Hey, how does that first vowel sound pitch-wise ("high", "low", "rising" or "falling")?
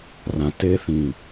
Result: low